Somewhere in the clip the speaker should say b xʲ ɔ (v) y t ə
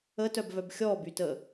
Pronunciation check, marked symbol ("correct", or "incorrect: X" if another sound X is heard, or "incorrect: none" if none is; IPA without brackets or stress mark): incorrect: b